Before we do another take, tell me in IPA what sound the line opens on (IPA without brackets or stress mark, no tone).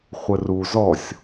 χʷ